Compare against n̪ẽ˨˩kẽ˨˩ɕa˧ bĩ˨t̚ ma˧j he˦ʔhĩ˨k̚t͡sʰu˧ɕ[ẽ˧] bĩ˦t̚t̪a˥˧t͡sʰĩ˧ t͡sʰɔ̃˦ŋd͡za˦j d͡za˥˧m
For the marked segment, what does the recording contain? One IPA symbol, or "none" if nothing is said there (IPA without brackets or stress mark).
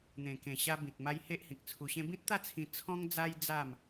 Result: ẽ˦